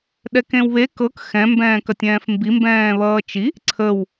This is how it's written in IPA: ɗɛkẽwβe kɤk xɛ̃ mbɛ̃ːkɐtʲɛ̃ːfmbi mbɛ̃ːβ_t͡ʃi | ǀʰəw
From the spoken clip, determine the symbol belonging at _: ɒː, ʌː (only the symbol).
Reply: ʌː